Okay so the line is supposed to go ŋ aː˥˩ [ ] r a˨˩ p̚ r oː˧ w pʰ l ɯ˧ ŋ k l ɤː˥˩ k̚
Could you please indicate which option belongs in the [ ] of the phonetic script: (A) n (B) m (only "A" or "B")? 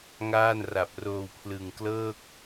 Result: A